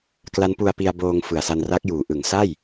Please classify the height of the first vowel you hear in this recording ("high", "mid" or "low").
low